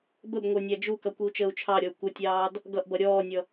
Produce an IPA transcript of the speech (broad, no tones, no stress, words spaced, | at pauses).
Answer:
bəb ŋʷə˞nʲæd͡ʒukʌ kʷiu̯t͡ʃəːu̯t͡ʃʰɑɾʲɔu̯ kʷətʲɑːd | ɡʌʔbʌ ɾʲɔːnʲʌ